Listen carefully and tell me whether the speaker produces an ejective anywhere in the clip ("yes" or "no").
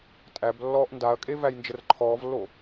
yes